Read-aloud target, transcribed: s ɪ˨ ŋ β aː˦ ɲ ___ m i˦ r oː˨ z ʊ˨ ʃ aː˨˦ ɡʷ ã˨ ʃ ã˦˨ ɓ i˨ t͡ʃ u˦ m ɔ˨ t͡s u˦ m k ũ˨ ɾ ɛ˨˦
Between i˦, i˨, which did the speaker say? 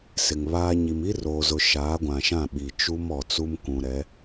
i˨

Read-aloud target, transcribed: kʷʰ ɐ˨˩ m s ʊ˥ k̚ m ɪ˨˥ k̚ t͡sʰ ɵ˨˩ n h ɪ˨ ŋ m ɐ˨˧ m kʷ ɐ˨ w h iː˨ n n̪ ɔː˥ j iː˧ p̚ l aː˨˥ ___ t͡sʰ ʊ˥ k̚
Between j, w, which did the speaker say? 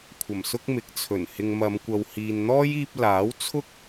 w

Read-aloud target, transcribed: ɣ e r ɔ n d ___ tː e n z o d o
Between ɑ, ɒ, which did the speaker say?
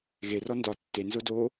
ɒ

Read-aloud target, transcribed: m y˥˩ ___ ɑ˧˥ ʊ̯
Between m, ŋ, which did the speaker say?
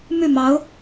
m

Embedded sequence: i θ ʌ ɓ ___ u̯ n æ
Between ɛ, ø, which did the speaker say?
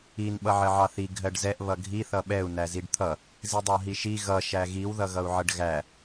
ɛ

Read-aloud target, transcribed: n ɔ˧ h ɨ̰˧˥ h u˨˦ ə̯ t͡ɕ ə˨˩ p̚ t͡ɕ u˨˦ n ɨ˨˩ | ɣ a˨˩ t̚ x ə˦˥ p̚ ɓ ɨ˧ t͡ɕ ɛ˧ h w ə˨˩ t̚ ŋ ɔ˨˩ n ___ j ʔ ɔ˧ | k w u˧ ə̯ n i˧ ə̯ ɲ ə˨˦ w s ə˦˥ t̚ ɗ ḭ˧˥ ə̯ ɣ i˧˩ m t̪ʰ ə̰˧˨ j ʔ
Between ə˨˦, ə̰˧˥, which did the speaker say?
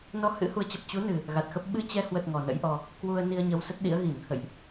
ə̰˧˥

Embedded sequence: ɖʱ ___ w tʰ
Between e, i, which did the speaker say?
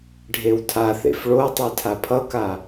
e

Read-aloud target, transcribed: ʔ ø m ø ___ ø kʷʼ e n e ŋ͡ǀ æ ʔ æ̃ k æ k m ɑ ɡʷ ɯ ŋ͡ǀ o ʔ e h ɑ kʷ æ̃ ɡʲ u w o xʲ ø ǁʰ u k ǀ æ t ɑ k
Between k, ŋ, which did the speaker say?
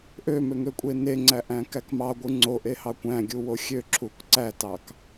ŋ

